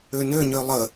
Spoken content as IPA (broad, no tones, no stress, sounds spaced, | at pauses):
ø n ø ɲ ø lˠ ə